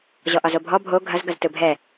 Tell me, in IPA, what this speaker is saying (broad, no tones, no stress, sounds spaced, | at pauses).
ʑ ɔ ʔ ɒ z o bʱ ɔ bʱ o ɡʱ ɐ z ɡ ɐ z t ɯ bʱ ɛ